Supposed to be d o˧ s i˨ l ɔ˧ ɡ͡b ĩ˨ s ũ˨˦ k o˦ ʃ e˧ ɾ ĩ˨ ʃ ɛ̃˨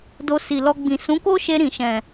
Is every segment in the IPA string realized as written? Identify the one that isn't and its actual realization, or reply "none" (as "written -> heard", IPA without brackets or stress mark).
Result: none